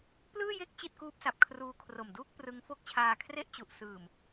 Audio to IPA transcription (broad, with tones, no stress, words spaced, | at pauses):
plɯː˥˩je˥˩k̚ t͡ɕi˥˩t̚kuː˦˥p̚sa˨˩p̚ kʰruː˧kʰro˨˩mduː˥˩k̚ prɯ˦˥ŋfo˥˩k̚ t͡ɕʰaː˧kʰre˥˩ʔt͡ɕu˨˩ʔ sɯː˨˩m